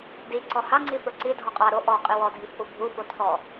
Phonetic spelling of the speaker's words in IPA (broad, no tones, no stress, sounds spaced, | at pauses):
d i ǀ ɔ h a ŋ͡ǀ i f ə˞ ǀ i dʱ ɔ qʼ a ɾ o ʔ ɔ qʼ i w ɔ dʱ i f ʔ u bʱ u f o tʰ ɔ